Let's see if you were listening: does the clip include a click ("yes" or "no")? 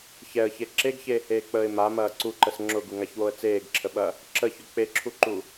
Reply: yes